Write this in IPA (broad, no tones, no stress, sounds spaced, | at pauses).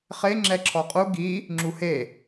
χ e ŋ͡ǁ ɛ ǁʰ ɔ qʼ u ɡ i | ŋ͡ǁ u h e